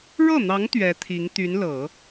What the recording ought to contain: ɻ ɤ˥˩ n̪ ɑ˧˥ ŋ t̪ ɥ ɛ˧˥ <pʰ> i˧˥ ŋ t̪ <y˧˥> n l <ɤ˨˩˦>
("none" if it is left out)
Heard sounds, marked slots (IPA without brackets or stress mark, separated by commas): t̪ʰ, y˧˥, ɤ˨˩˦